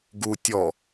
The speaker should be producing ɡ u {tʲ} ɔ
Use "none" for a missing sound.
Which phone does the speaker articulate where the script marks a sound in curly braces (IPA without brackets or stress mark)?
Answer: tʲ